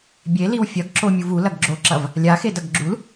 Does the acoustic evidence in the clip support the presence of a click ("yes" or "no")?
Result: yes